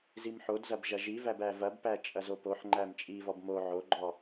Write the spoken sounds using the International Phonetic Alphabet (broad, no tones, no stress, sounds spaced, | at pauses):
z i m ħ o d z ɐ b ʒ ɐ ʒ i v æ b æ v ɐ b p æ t͡ʃʼ ɐ z o p o ħ ŋ͡ǃ æ m t͡ʃʼ i v ɔ b m o ʕ o ɡ͡ǃ ɔ